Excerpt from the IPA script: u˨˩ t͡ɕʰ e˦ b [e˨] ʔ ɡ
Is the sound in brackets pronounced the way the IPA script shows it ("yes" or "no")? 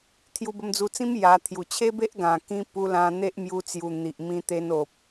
no